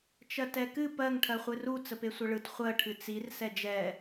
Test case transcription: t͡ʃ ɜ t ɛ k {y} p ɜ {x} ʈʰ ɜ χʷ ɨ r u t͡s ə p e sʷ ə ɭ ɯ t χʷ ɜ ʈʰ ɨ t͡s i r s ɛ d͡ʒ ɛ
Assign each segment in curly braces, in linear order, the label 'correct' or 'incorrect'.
incorrect: ɨ, incorrect: ŋ

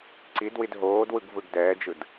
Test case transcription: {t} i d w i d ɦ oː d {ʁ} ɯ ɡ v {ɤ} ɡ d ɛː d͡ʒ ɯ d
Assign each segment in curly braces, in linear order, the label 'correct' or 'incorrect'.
incorrect: ǀ, incorrect: w, incorrect: ɯ

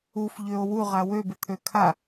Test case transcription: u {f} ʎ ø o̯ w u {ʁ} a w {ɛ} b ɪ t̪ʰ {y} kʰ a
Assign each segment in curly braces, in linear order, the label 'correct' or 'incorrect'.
correct, correct, incorrect: ø, incorrect: ø

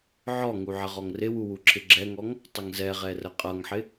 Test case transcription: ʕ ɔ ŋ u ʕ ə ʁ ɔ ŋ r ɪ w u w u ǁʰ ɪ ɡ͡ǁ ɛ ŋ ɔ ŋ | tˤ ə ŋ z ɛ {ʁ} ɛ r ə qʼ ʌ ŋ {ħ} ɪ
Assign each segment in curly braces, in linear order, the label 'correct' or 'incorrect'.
correct, correct

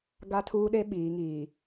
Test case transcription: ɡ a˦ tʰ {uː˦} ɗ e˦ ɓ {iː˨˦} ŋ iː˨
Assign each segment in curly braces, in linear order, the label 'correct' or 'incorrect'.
correct, correct

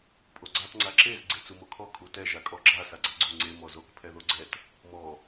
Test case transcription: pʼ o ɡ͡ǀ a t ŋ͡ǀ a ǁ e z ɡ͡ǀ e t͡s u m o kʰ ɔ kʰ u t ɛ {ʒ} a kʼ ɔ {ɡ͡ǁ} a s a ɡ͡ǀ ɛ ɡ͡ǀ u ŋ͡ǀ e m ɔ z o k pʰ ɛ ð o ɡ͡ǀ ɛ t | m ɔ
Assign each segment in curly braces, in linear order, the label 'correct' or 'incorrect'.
correct, correct

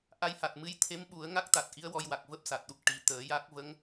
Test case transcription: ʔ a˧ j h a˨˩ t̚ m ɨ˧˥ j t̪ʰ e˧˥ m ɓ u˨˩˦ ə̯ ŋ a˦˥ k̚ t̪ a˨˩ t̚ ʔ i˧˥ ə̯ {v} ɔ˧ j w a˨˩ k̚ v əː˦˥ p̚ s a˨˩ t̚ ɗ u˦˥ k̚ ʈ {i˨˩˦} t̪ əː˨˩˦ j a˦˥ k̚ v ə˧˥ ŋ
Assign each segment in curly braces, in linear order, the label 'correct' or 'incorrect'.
incorrect: w, correct

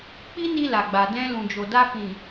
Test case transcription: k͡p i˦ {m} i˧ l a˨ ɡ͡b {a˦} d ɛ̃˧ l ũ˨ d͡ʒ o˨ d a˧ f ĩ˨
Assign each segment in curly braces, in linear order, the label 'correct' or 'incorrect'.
incorrect: n, incorrect: a˨

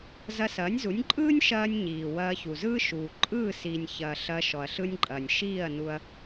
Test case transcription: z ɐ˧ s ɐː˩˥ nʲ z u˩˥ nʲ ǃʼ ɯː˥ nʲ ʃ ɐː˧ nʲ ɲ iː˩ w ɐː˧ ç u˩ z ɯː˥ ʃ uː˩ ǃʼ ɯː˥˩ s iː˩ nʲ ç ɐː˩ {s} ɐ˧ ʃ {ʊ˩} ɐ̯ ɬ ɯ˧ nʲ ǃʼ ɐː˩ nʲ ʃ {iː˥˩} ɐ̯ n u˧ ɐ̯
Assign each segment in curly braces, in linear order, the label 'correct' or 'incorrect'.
incorrect: ɬ, incorrect: ɔ˩, correct

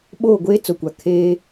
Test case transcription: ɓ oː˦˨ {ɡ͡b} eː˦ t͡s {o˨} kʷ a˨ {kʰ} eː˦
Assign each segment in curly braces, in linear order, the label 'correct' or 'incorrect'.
incorrect: ɡʷ, correct, correct

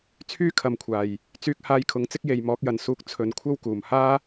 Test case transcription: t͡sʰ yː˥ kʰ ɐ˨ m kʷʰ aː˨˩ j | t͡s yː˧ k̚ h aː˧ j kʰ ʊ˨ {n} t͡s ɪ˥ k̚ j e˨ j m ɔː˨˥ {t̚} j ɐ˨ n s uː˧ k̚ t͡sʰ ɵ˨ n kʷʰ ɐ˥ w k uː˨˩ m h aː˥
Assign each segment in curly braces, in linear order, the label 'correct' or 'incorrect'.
incorrect: ŋ, incorrect: k̚

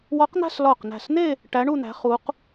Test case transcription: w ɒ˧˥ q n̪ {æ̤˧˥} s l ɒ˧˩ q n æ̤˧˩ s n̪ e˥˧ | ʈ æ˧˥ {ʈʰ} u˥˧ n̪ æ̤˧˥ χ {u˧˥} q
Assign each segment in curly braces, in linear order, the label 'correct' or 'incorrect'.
incorrect: æ̤˥˧, incorrect: ɳ, correct

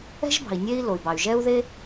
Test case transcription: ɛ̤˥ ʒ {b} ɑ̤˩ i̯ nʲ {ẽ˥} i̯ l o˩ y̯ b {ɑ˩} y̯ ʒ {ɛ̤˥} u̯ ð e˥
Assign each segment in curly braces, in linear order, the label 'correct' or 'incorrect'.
correct, incorrect: e˥, correct, incorrect: ɛ˥

